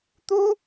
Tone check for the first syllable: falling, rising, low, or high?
high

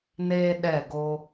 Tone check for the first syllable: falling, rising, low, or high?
high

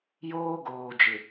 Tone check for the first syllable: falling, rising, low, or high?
high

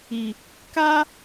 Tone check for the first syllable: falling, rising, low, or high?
low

